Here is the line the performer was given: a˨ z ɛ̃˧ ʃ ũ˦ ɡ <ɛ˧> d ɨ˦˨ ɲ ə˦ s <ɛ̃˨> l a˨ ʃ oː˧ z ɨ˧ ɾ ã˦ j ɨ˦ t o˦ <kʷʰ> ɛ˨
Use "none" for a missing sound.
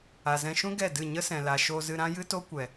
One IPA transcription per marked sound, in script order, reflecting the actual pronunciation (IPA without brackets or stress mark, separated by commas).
ɛ˦˨, ɛ̃˨, kʷ